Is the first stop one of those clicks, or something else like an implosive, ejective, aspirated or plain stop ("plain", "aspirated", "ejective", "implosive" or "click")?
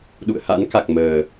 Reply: implosive